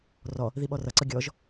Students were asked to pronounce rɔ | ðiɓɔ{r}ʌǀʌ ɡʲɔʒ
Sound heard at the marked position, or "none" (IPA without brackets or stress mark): r